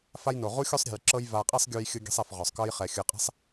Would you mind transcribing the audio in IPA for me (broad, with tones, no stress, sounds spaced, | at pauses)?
f a˦ j n o˨ ʁ u˦ xʲ o˦ sˤ ɾʲ e̤˨ j ǁ ɤ˦ j v a˨ qʼ i˦ sˤ ɡʲ u˧ j xʲ ɯ˧ ɡʲ e̤˦ sˤ ɛ˨ f ʁ ɔ˨ sˤ k ɤ˦ j χ ɛ˨ xʲ ɯ˨ qʼ e̤˦ sˤ